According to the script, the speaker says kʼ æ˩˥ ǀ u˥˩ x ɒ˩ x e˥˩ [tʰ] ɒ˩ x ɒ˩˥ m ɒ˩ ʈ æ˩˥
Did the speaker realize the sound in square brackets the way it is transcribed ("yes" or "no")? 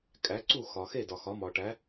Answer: no